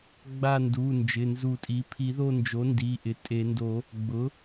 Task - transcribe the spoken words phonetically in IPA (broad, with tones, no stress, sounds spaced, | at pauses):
ɡ͡b a˦˨ n d u˩˧˩ n d͡ʒ ɪ˩˧˩ n z u˨˩˦ tʼ i˩˥ pʰ i˨˩˦ ð o˦˨ n d͡ʒ o˩˥ n d i˩˧˩ ʔ ɪ˩˧˩ tʼ e˨˩˦ n d o˨˩˦ | ɡ͡b ʊ˩˥